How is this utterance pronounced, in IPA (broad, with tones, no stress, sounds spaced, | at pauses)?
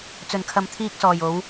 t͡s ɵ˨˩ n kʰ ɐ˨ m t̪ʰ iː˧ k̚ s ɔː˨˩ j o˨˧ w